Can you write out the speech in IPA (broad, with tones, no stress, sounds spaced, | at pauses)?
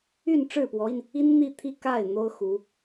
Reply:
y˥˧ n ʈ͡ʂ ɻ̩˥˩ p w ɔ˧˥ i˧ n | i˥ n n̪ i˥˧ t̪ʰ i˥˧ k a˥˩ ɪ̯ n̪ o˥ ʊ̯ x u˧˥